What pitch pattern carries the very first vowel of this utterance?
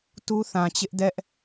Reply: high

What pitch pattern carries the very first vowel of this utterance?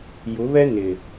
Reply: rising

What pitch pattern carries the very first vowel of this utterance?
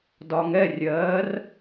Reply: low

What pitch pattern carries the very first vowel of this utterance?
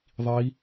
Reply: rising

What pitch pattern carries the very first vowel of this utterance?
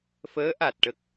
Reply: rising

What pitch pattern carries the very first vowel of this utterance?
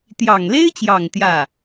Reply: low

